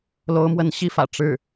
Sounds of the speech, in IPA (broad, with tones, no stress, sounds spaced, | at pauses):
l o˧˥ ʊ̯ m w ə˧˥ n ɕ i˥˩ f ä̰˨˩ ʈ͡ʂ ɻ̩˥˩